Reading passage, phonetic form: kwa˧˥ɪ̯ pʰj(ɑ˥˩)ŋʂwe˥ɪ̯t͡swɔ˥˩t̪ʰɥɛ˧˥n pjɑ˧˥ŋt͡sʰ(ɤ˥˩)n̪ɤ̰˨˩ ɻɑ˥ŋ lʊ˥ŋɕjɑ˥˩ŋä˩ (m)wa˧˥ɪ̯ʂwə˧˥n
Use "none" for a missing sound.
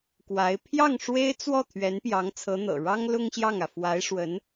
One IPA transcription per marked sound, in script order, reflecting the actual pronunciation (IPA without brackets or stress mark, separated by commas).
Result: ɑ˥˩, ɤ˧˥, f